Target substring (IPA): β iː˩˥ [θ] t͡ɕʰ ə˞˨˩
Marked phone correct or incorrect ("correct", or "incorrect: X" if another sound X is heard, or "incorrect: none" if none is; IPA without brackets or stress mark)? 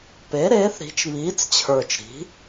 incorrect: t͡s